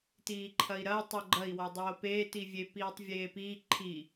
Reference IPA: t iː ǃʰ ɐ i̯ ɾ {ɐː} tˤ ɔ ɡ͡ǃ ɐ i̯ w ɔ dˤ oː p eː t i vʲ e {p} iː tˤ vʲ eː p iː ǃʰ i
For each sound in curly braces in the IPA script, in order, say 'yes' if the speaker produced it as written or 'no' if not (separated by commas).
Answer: yes, yes